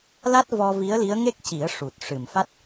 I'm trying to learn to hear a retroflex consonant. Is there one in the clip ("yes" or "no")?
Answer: yes